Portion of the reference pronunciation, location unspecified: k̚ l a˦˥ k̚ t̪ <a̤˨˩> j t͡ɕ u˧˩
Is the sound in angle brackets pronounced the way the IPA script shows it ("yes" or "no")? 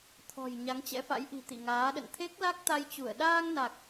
no